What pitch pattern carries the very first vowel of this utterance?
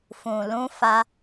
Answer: low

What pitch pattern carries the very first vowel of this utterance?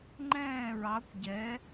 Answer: falling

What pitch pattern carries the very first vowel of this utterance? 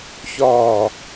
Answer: falling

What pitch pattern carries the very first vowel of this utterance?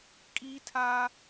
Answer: high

